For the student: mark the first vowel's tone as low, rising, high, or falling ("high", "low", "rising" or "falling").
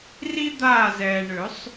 high